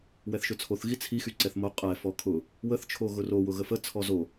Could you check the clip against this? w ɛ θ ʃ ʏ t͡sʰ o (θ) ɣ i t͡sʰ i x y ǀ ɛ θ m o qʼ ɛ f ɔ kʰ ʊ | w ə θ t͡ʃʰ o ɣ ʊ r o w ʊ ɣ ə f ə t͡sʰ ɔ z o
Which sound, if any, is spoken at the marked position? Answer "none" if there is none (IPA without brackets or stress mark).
θ